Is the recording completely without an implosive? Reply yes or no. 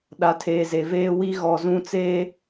no